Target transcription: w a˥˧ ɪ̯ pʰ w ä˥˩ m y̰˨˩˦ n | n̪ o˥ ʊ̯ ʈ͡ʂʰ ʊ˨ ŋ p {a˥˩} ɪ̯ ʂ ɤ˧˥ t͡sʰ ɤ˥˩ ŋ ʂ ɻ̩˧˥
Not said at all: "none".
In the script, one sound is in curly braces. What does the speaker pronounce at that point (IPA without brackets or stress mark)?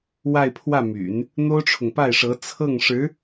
a˥˩